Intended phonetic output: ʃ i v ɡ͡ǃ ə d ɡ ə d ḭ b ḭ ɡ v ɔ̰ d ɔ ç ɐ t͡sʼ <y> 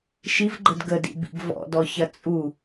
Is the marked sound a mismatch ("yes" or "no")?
yes